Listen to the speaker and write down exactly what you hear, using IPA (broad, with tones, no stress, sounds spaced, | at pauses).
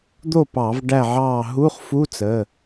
d̪ o˥˨ p ɑ˧˩˧ v ɖ æ˥˨ ʕ ɑː˥˨ ɦ u˧˥˧ χ f u˧˥˧ t͡s ə˩˧˩